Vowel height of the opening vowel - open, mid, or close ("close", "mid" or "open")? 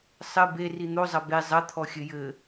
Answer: mid